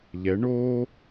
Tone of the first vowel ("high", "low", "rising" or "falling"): rising